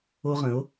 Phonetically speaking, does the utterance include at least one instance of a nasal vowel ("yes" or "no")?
yes